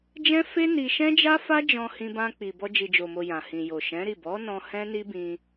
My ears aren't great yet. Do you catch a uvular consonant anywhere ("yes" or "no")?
no